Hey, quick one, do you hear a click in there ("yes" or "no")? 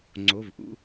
yes